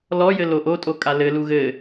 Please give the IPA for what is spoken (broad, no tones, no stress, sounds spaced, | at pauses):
l ɔ j ɘ l o ʔ o tʼ o kʼ a l ɘ l u ɣ ɘ